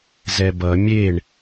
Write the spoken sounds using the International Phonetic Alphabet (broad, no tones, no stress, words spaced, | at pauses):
zɛbʌ mʲeɳ